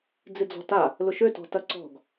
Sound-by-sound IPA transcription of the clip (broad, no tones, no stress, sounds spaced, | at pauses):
d͡z ɪ d͡z ɔ̤ t a | l ʊ ʃ ø t ɔ̤ t ɐ ǀ ɔ̤ ɡ